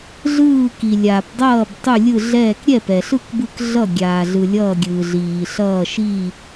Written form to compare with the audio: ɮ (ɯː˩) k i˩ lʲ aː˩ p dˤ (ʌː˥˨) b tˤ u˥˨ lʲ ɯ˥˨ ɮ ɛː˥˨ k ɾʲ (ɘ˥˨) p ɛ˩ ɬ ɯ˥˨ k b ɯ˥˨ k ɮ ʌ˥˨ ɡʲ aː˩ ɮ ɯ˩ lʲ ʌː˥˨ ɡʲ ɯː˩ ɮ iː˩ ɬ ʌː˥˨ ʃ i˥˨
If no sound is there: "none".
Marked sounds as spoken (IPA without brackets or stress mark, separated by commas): ɯː˥˨, ʌː˥˨, ɛ˥˨